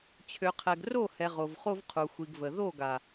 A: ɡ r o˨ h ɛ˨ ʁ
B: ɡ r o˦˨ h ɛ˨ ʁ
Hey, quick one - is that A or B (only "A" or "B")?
B